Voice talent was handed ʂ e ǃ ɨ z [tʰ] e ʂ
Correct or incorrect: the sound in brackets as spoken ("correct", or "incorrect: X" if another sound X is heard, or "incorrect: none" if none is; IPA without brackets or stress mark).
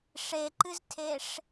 correct